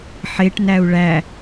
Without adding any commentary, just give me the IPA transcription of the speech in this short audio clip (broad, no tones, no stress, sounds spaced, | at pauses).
ħ e ʈ n æ u̯ ɭ æ